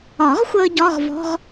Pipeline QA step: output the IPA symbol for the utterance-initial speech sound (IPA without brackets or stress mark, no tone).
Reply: ɒ